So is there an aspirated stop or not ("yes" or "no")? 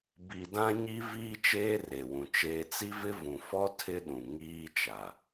yes